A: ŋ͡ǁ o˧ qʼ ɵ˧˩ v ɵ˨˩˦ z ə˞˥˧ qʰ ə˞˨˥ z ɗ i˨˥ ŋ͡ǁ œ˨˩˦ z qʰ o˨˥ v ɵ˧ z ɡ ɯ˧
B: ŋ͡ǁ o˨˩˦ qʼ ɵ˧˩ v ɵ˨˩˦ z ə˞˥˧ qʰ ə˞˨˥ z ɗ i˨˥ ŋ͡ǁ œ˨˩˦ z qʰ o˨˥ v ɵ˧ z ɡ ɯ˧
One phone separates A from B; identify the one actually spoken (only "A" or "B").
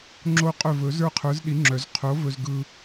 A